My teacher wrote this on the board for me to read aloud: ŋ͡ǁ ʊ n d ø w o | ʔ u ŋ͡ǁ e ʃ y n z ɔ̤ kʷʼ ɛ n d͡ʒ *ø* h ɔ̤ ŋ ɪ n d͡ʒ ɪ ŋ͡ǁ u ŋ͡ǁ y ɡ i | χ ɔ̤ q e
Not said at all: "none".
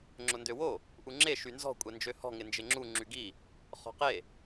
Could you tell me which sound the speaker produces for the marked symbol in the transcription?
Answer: ø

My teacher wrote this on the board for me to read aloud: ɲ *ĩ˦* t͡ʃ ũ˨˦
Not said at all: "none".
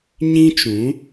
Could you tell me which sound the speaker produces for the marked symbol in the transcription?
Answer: ĩ˦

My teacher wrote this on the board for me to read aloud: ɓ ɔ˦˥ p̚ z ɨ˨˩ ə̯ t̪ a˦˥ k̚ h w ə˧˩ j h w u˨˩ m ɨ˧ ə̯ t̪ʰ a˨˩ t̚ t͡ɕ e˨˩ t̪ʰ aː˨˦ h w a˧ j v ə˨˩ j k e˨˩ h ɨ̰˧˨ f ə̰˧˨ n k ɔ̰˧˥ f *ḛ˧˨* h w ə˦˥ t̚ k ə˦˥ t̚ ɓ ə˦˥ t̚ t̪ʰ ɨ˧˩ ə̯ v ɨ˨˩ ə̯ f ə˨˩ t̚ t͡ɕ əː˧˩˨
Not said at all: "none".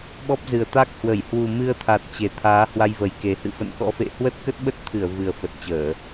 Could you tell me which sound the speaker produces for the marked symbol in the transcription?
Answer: ḛ˧˨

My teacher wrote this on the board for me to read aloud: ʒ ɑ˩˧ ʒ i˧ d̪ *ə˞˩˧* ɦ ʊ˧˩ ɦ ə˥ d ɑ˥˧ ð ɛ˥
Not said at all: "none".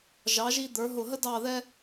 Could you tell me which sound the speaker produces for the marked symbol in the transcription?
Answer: ə˞˩˧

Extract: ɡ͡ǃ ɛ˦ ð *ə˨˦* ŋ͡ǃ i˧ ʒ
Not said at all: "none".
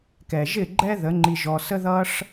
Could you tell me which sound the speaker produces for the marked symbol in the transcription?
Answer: ə˨˦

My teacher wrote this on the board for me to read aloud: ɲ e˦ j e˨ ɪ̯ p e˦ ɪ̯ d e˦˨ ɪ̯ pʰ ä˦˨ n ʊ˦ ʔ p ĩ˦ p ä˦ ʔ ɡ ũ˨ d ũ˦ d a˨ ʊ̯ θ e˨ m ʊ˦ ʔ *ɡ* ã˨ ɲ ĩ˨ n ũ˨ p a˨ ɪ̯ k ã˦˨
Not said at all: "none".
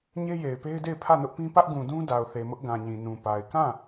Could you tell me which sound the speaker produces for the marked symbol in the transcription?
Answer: ɡ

